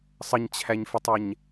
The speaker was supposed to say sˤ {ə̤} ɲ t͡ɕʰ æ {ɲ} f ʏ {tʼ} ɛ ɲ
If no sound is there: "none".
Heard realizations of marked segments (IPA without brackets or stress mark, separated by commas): ə, ɲ, tˤ